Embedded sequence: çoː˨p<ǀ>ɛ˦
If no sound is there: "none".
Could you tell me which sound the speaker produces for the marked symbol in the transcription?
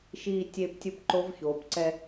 ǀ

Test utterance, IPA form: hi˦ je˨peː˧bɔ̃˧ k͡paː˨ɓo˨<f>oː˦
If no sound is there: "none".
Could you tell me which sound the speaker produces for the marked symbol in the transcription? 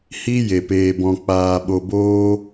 b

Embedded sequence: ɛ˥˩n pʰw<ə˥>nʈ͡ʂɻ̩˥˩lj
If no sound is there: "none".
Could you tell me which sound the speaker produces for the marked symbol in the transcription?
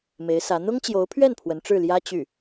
ə˧˥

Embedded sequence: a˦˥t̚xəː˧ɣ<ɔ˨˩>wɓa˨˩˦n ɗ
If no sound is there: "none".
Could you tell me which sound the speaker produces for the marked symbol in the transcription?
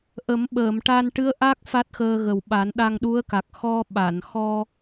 ə˨˩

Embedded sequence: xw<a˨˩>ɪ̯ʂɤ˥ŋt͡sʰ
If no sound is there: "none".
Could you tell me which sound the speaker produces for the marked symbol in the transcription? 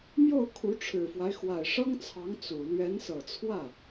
a˨˩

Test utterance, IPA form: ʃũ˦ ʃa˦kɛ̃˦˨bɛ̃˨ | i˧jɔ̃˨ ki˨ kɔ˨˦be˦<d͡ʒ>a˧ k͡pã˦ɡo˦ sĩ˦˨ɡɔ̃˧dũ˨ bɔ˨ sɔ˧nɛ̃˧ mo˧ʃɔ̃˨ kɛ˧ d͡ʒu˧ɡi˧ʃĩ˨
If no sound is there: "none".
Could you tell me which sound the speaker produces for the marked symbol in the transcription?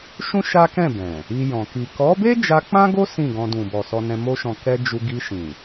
d͡ʒ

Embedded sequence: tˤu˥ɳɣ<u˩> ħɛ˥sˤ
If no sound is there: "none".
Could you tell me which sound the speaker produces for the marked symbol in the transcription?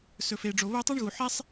u˩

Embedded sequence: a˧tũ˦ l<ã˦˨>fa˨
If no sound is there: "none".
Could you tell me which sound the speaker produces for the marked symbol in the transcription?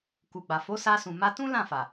ã˦˨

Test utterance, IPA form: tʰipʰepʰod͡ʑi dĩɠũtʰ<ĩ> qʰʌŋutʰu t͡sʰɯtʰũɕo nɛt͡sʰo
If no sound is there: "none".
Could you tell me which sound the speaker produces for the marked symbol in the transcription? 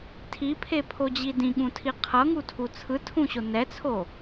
i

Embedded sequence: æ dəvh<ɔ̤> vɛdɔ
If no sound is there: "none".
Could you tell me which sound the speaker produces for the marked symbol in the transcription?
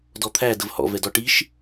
ɔ̰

